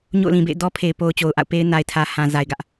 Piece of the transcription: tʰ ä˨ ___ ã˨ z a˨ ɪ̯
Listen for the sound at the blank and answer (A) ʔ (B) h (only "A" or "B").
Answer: B